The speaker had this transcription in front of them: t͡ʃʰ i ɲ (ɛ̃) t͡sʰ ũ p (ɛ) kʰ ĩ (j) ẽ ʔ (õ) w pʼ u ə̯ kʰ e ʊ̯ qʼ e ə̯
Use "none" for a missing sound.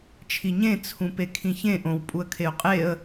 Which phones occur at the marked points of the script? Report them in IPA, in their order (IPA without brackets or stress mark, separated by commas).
ẽ, e, ç, õ